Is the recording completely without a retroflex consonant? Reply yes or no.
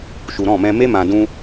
yes